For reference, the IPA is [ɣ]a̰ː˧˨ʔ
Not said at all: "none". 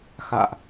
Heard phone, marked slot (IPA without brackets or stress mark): x